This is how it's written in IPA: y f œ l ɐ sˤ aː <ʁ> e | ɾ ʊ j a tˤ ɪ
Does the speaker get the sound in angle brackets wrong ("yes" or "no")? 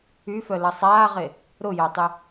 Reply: no